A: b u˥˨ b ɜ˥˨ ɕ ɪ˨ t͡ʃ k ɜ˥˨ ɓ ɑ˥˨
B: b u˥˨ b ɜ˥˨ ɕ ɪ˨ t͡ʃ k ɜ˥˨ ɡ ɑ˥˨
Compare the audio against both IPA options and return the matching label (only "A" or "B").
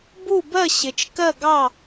B